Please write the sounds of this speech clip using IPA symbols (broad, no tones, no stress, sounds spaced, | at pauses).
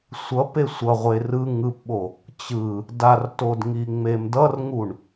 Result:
sʷ ʌ p e sʷ ʌ ʁʷ e r ɯ ŋ ɯ p ɓ o | t͡ɕ ɯ | d a r t o d ŋ i ŋ͡m e m d ʌ r ŋ u ɳ